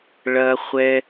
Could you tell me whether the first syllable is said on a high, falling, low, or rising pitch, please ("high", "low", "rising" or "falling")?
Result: high